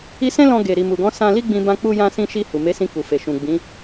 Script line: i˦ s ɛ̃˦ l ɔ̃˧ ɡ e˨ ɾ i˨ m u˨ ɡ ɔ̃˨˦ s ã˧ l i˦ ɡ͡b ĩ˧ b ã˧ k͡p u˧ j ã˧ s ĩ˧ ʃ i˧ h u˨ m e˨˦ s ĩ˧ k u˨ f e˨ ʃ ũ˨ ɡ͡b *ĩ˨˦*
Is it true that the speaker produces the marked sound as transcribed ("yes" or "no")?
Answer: yes